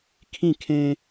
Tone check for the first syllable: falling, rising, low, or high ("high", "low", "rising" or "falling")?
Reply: falling